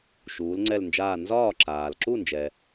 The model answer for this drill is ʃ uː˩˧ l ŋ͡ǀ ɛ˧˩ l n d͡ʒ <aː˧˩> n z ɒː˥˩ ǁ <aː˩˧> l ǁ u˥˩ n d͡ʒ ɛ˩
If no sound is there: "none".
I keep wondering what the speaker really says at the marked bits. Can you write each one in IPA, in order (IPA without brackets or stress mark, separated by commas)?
aː˧˩, aː˩